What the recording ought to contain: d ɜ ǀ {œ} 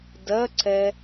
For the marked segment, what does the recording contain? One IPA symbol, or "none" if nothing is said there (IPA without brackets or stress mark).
ɛ